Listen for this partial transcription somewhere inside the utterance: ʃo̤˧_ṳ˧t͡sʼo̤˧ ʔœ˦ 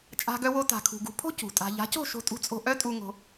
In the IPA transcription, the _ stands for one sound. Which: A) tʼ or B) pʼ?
A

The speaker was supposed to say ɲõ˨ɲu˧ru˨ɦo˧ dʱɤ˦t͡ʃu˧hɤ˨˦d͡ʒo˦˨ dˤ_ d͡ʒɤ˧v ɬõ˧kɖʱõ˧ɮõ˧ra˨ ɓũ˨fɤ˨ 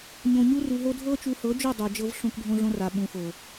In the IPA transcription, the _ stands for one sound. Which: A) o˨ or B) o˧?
A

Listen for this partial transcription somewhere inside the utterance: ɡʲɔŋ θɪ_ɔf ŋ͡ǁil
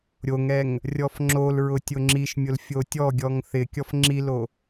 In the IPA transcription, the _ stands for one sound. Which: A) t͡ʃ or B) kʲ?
B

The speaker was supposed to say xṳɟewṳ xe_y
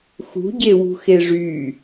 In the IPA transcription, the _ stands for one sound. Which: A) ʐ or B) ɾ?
A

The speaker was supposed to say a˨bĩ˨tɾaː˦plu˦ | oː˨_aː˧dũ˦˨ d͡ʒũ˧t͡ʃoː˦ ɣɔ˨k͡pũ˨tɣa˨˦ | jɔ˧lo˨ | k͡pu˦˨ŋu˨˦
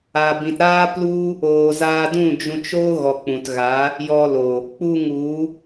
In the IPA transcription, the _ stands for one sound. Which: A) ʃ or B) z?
B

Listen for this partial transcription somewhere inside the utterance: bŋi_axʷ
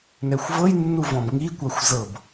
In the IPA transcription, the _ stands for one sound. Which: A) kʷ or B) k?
A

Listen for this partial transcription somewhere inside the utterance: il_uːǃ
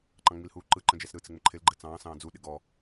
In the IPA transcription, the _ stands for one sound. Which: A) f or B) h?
B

